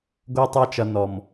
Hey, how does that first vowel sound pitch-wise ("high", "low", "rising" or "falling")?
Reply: high